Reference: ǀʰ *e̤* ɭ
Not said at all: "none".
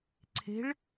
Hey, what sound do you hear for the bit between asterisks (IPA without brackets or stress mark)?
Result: e̤